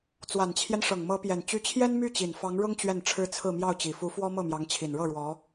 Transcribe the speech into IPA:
t͡s w a˨˩ n t͡ɕʰ j ɛ˦ n ʂ ɤ˨˩ ŋ m ɤ˧˥ p j ɛ˨˩ n t͡ɕ y˧˥ t͡ɕʰ j ɛ˥ n m y˥˩ t͡ɕ i˨˩ n f ɑ˧˥ ŋ ɻ ʊ˥ ŋ t͡ɕ ɥ ɛ˥˩ n ʈ͡ʂʰ ɻ̩˥ t͡sʰ ɹ̩˥˧ m j ɑ˥˩ ʊ̯ t͡ɕ i˨˩ f u˧˥ f w ɔ˥ m ɤ˥˩ m j ɑ˧˥ ŋ t͡ɕʰ i˨˩ n ɻ ɤ˥˩ ɻ w ɔ˧˥

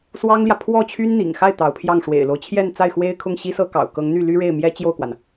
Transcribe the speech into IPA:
s w ɑ˥ ŋ l j ä˨ pʰ w ɔ˥˩ t͡ɕʰ y˥ n n̪ ḭ˨˩ ŋ x a˥˩ ɪ̯ t̪ ɑ˧˥ ʊ̯ pʰ j ɑ˥˩ ŋ ʂ w ḛ˨˩ ɪ̯ l o˦ ʊ̯ t͡ɕʰ j ɛ˥˧ n t͡s a˥˩ ɪ̯ x w e˥ ɪ̯ kʰ ʊ˥˩ ŋ ɕ i˥ s ɤ˥ k ɑ̰˨˩ ʊ̯ k ɤ˧˥ ŋ n̪ y˥˩ l y˥ ɻ e˥˩ ɪ̯ m j ɛ˥ t͡ɕ j o˥˩ ʊ̯ k w a˩ n

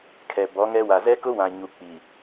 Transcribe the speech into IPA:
kʰ ɛ˨ b ɔ˨˦ ŋ ɛ˦ w a˨ z ɛ˦ k ʊ˦ w ã˨ ɲ u˨ k͡p i˨

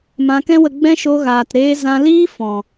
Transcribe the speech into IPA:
m ã˧ k ɛ̃˦ w ə˧ ɡ͡b ɛ̃˦ ʃ o˧ ɣ aː˨ t ɾ eː˧ z ã˧ l iː˦ f ɔ̃˨

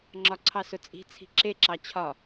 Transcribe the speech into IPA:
ŋ͡ǁ ɒ ǀʰ ɑ s ʊ t͡sʼ i̤ t͡sʰ i̤ ǁ e ǁ ɑ t͡ɕʰ ɒ

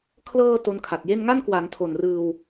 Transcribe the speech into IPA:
kʰ l ɤː˧ t o˦˥ n kʰ a˨˩ t̚ j e˥˩ n ŋ a˥˩ n k w a˩˦ n tʰ o˨˩ n r ɯː˧ w

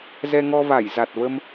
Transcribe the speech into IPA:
z ɛ˧ ŋ ɔ˧ v a˧˩ j z a˨˩ t̚ v ə˧ m

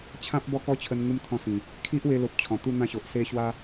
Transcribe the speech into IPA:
t͡ɕʰ ã˦ p̚ b ɔ˦ k ɔ˦ t͡ɕʰ ə˧ n ŋ u˦ m t̪ʰ ɔ̃˧ s ĩ˨˩ | kʰ i˦ ʔ w e˧ l o˨ p̚ t͡ɕʰ ɔ̃˨˩ t̪ u˥˧ n̪ ã˦ ɕ o˨ ʔ s e˦ ɕ w a˦

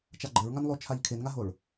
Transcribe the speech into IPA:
t͡ʃ a ɡ͡ǃ ɘ ɹ ŋ a n lˠ o t͡ʃʰ a ʎ kʰ e n ŋ a ɦ o ɭ

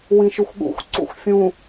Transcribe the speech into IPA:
w ĩ ʃ ʉ xʷ ɠ ṵ xʷ ǀ ṵ xʷ fʲ ũ

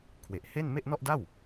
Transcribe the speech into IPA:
kʰ w e˨˩ ʔ h e˥˩ n m e˥˩ ʔ n ɔ˥˩ ʔ d a˥˩ w

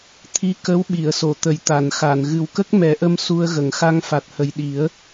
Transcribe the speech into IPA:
t̪ʰ i˧ k ə˧˥ w ɓ i˨˩˨ ə̯ s o˨˩˨ t̪ ə˨˩˨ j t̪ a˨˩˨ n x a˨˩˨ n ɣ ɨ˨˩ w k ə˦˥ k̚ m ɛ˨˩˦ ʔ ə˧ m s u˧ ə̯ ɣ ə˨˩˨ ŋ x a˧ ŋ f a˨˩ t̚ h ə˨˩ j ɗ i˨˩˦ ə̯

